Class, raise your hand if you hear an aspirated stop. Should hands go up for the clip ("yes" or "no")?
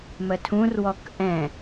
yes